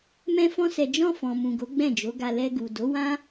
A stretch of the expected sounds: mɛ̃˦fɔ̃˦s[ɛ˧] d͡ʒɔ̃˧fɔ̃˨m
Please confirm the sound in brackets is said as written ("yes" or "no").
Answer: yes